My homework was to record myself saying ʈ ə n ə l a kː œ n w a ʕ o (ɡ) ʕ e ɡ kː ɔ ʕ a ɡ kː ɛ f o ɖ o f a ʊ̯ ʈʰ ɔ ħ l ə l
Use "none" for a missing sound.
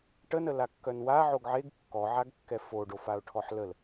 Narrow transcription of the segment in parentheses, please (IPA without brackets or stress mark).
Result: ɡ